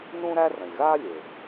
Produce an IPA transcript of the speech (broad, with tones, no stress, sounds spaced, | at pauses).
n ũ˥ ɾ æ˥ r ə̃˩ lʲ ɣ aː˥ lʲ e˩ b